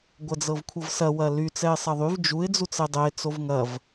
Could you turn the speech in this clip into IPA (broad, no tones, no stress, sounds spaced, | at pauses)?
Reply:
ɡʷ ɐ d͡z ɤ v kʷʰ ɤ v s ɐ w ɐ l y t͡s ɛ ɪ̯ sˤ ɐ ðˤ y v d͡ʒ u ɪ̯ d͡z u t͡s ɛ dˤ ɛ ɪ̯ t͡s o v ŋ ɐ v